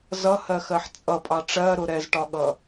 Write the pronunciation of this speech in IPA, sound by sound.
z ʌ h ɜ x ɜ ħ t͡sʼ ʌ pʼ ɑ ʈ͡ʂ ɜ ɾ ʊ ɾ ɛ z ʈ ɒ ɠ ʌ

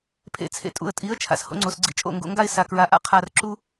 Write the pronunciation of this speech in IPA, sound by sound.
pʰ ḛ˨ t͡sʰ ḛ˨ tʼ ṵ˨ ə̯ tʼ i˨˦ ə̯ t͡ʃʰ a̰˨ s h o̰˧ ŋ͡ǀ o˨ s ɡ͡ǀ ḭ˧ t͡ʃʼ o̰˦˨ ŋ ɡ o̰˧ ŋ ɡ a˦ ɪ̯ s a˨ k ɹ a˨ ʔ a̰˦ qʰ a˧ r ǁ u˦

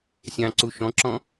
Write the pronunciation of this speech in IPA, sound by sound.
sʲ ɑ̃ ǀ u ʃ ɔ̃ ǁ ɔ̃

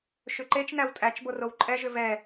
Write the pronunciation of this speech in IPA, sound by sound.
ʃ ʏ ǃ e t͡ʃ n æ w tʼ æ t͡ʃ b o r o w ǃʼ ɛ ʒ ʏ v ɛ

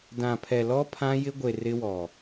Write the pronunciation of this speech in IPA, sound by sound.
d ã˨ pʰ ɛ˨ l ɔ˦ pʰ ã˦ j ɪ˦ ɡʷ e˨ r ɪ˦ w ɔ˨

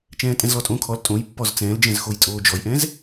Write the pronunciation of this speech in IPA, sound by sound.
t͡ʃ ɛ̃ː tʼ ɛ̃ z l ɔ tʼ õ kʰ ɔ l tʼ õ j pː ɔ z t͡s ɛ̃ː l d͡ʒ ɛ̃ z x o j tʼ oː d͡ʒ ɔ j ʔ ɛ̃ z

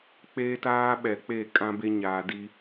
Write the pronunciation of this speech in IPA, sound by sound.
k͡p e˦ t aː˦ ɓ ɛ˨ k͡p e˦˨ kʼ ã˦ b e˦ ɲ aː˨ d i˦

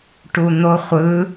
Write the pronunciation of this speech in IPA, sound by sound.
ʈ u n̪ o χʷ ɯ

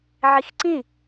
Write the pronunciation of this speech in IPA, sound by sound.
ʕ i x ǀ ĩ

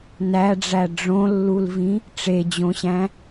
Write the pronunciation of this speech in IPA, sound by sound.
n æ ɖ͡ʐ æ ɖ͡ʐ õ lː u l v ĩ | ʈ͡ʂ e d͡ʑ õ ɕ æ̃

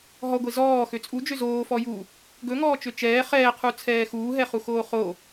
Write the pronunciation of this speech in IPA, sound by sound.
ɦ ɔ ɡʷ e z ɔː x ø t͡sʼ u d͡ʒ ø z oː f ɔ j u | ɡ ɵ ŋ ɔː t͡ʃ ø t͡ʃ ɛː χ ɛː qʰ u t͡sʰ ɛː x uː ɦ ɛ χ u x oː χ o

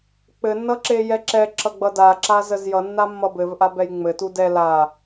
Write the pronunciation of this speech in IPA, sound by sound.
k͡p ɘ nː ʌ ǁ e j ɛ ǁ ɛ ǁ ʌ ɡ͡b ʌ d a ǁ a z ə z j ʌ nː a mː ʌ b ɘ v ʔ a b ɛ j ŋ͡m ɘ t u d ɛ l a

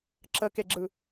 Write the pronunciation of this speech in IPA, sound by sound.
ǁ ə k e ɡ͡ǁ ɯ

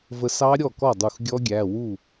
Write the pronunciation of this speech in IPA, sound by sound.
v ə˧ s ɑ˦˥ ɾʲ ɔ˥˩ k ɔ˥˩ dˤ u˧˩ x ɡʲ ɔ˦˥ ɡʲ æ˩˧˩ w u˥˩

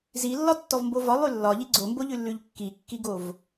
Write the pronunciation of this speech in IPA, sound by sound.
z i lː ɒ tː ɔ v m b o v ɒ lˠ ʉ lː ɒ ʎ i ɡ͡ǀ o m b o ʎ ʉ lː ʉ ʎ kː i kː i ɡ o v

